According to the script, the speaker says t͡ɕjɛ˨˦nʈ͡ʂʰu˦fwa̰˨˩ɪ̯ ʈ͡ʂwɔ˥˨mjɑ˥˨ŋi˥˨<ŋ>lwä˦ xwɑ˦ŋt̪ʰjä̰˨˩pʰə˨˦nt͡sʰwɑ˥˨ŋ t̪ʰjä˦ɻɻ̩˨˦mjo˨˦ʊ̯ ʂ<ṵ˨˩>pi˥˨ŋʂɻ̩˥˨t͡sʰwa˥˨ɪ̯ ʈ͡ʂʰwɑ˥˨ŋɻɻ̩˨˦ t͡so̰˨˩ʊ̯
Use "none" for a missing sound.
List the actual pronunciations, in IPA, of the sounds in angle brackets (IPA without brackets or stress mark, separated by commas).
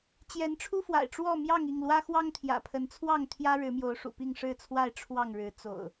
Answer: ŋ, ṵ˨˩